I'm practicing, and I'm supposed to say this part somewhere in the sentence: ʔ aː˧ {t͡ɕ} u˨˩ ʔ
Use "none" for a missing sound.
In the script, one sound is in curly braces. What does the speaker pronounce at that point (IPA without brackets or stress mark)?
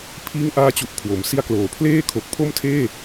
t͡ɕ